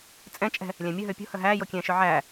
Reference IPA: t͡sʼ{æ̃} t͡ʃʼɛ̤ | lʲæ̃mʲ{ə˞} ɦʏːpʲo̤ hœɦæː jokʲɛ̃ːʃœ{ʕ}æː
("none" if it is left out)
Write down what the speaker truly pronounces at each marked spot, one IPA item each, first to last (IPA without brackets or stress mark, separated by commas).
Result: ɛ̃, ə, ʕ